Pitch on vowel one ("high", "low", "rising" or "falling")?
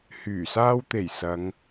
low